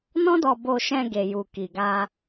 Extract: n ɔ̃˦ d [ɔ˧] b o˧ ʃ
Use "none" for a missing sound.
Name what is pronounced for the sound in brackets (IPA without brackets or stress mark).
ɔ˧